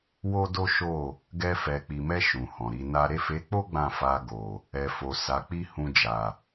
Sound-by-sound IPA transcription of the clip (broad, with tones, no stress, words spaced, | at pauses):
wo˦do˦ʃo˦˨ | ɡɛ˧fɛ˨k͡pi˨mɛ˧ ʃũ˨hɔ̃˨ɾi˨˦na˦ ɾe˦˨fe˨˦k͡po˦ ɡ͡bã˦˨ fa˧ɡo˨ | ɛ˨fo˨ sa˨˦k͡pi˦ hũ˧d͡ʒa˨